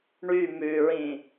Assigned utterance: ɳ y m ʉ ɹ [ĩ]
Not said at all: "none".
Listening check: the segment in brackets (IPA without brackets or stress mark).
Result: ĩ